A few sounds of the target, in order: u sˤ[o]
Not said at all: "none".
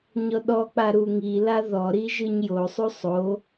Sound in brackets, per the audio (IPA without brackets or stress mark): o